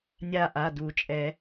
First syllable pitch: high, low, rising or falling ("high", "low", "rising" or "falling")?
falling